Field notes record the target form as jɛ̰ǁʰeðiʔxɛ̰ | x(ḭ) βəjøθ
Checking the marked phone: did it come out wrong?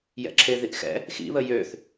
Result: no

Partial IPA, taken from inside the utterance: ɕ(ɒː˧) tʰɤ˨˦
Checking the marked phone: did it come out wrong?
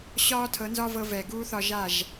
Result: yes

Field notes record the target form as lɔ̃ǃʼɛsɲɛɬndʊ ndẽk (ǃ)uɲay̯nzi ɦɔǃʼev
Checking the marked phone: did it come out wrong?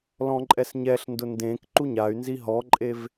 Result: no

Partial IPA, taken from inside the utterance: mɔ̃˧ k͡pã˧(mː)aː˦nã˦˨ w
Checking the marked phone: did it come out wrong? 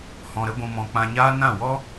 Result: yes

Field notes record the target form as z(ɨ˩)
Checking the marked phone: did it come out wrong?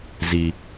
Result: yes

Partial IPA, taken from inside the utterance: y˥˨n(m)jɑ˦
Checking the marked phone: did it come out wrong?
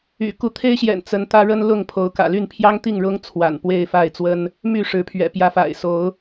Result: yes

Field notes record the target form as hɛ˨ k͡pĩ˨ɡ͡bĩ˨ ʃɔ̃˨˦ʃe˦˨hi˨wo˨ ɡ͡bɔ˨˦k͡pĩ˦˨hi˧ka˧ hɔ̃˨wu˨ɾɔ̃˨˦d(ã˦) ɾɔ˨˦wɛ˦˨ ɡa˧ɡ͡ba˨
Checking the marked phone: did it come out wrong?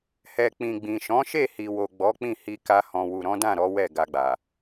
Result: yes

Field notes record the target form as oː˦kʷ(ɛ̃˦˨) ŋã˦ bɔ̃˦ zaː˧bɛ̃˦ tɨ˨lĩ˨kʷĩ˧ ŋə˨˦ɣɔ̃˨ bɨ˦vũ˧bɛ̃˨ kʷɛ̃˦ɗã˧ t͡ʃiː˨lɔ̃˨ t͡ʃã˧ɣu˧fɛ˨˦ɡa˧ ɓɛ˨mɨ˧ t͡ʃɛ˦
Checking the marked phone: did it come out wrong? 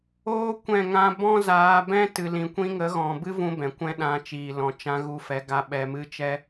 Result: no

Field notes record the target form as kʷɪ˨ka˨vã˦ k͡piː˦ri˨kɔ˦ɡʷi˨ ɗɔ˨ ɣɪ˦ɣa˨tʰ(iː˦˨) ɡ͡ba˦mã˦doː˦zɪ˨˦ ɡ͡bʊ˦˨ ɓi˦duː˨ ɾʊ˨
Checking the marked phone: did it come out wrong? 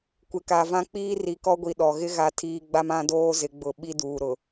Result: yes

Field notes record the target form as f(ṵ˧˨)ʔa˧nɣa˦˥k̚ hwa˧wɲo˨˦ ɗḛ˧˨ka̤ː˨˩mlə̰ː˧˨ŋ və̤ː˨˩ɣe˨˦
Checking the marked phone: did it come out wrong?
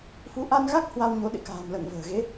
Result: yes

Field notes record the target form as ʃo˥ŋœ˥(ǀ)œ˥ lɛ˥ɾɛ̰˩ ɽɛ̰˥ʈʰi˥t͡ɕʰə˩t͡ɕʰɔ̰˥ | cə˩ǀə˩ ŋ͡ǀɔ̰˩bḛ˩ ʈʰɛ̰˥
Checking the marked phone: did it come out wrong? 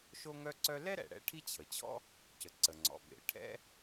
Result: no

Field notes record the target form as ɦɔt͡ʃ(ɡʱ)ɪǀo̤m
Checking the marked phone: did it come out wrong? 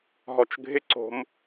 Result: no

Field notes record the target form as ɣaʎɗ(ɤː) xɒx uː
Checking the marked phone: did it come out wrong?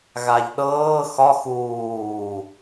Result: no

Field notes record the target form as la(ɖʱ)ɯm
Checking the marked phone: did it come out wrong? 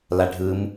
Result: no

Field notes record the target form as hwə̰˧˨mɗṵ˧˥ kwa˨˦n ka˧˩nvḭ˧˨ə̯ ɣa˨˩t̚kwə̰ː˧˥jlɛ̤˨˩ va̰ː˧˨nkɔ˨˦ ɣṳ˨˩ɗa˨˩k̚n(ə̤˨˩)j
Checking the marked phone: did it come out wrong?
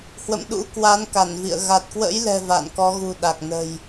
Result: no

